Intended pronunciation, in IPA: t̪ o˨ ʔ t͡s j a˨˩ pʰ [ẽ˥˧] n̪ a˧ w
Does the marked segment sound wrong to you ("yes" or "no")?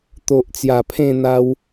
no